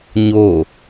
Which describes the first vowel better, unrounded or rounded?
rounded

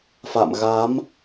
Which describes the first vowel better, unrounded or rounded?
unrounded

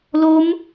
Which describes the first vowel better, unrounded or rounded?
rounded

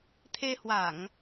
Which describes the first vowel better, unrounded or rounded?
unrounded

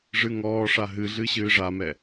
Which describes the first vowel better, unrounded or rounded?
unrounded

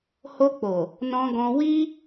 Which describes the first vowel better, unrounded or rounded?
rounded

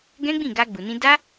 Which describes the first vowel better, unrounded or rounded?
unrounded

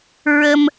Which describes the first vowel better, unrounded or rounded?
unrounded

